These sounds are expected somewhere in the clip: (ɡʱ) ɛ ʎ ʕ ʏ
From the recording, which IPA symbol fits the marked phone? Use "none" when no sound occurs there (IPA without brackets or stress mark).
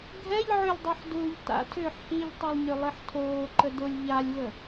ɡʱ